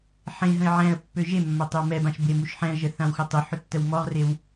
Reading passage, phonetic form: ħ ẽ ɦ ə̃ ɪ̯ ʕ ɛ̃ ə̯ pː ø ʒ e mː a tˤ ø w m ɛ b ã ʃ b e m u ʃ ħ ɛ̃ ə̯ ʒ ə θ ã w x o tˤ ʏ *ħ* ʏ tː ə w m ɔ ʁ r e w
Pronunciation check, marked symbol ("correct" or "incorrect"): correct